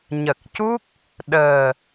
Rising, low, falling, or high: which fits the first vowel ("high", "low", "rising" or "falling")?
low